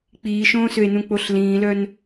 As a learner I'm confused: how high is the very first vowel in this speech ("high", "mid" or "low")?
high